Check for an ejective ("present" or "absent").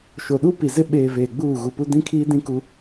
absent